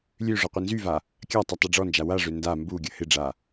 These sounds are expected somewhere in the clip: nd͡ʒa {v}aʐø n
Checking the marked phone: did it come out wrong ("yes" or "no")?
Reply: yes